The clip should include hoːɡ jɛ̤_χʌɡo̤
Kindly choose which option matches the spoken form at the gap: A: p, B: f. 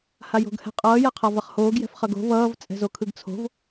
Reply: B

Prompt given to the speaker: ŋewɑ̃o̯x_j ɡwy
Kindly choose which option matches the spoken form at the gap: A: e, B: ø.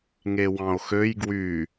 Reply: B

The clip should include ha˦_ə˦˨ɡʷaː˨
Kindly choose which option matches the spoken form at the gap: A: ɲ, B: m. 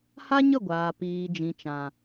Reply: A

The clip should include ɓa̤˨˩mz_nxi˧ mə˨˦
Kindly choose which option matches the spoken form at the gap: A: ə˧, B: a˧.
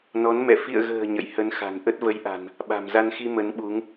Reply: B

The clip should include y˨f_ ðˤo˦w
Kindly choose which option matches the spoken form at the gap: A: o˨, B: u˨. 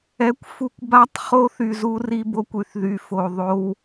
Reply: A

